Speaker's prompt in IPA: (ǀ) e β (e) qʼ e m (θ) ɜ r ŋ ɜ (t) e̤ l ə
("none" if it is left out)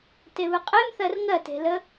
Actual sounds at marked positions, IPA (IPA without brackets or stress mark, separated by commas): t, ɨ, θ, t